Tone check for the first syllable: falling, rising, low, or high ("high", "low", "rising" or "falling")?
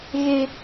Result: high